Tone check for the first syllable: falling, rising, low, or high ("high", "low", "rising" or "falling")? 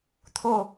falling